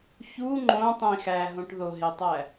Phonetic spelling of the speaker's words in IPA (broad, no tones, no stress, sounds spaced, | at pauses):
ç u ŋ͡ǃ õ tˤ ĩ x æ ɦ õ ʈ ð o ɦ e tˤ æ